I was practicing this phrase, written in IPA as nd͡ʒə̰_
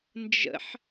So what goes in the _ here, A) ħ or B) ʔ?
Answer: A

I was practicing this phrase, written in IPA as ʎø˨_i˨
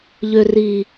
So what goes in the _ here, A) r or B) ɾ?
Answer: A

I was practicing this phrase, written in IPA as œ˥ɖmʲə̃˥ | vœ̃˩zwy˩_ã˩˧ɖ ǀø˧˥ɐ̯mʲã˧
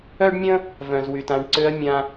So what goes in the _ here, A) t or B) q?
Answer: A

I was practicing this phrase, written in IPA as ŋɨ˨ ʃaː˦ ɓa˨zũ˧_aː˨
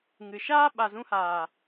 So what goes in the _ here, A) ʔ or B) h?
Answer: B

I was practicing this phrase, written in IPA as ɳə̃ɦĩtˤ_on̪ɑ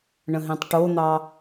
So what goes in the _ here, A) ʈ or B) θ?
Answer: A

